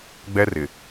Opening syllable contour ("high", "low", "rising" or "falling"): high